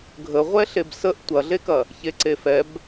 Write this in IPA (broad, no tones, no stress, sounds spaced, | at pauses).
ɡʱ ə ʁʷ ɛ ɬ e b s ə ʔ tʷ ɐ ɮ e k ɐ | ç e ǀ e f ɛ b